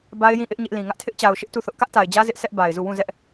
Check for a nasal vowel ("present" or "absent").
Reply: present